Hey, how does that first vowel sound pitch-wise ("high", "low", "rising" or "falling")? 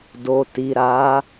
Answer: low